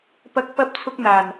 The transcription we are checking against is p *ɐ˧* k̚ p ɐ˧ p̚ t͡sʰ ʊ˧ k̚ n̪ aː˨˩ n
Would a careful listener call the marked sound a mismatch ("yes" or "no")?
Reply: yes